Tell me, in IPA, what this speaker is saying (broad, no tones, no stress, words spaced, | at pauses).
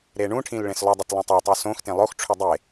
ɾeɳũʈʰĩl ɭẽslˠudˤot lˠõtˤetˤu sõxtẽ lˠoxʈ͡ʂʰu dˤe